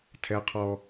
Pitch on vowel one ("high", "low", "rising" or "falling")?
high